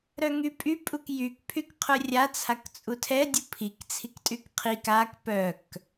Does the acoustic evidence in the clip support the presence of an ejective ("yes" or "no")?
yes